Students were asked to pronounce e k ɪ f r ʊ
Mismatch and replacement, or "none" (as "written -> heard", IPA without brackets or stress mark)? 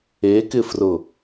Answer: none